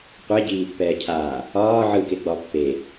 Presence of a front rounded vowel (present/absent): absent